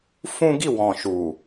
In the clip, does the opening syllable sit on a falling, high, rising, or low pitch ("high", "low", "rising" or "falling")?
high